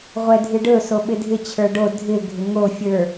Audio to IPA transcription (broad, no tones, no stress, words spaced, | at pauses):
ʁʷɛdʱɨɖɵ soɓɪdʱɪ t͡ɕʰə˞ɖo dʱɪ ɡʱɪŋo fʲə˞